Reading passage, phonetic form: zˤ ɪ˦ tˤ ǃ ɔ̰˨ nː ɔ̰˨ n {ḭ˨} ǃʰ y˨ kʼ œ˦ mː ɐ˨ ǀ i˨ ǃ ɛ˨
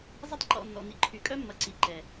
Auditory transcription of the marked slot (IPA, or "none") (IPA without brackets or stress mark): ḭ˨